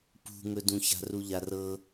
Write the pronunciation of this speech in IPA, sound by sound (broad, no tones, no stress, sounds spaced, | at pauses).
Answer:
p ṳ ŋ ɵ d ũ ç a̤ r u ʎ a r ɤ